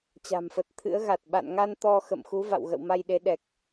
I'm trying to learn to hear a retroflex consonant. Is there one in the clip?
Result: no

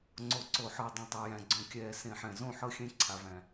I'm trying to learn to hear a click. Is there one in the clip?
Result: yes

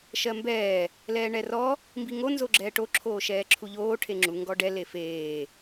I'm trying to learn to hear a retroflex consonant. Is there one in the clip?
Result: yes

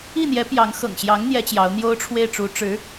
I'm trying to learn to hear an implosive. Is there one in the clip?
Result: no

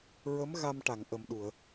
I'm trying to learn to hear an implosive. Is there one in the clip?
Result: yes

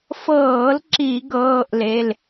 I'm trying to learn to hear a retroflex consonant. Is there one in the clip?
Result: no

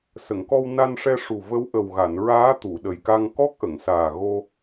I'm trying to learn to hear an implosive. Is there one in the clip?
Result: yes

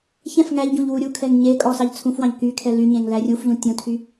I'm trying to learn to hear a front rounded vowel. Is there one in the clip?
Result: yes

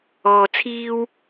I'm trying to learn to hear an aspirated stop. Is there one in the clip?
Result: yes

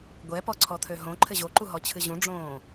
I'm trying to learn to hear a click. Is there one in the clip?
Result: yes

